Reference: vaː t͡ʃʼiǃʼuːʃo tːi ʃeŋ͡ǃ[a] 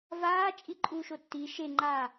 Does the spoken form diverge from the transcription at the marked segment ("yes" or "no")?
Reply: yes